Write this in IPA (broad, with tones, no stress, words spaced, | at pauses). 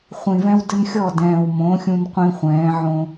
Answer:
χʷĩ˨vɛ̃˦wdɘ˦nxʲɔ˦˨ dɛ̃ː˨w mõ˨˦ xʲũ˦nqʷĩ˦χʷɛ̃ː˨˦ ʕõ˦